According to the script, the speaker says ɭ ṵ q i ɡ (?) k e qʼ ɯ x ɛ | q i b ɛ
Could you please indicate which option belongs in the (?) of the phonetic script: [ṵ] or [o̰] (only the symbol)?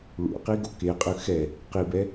o̰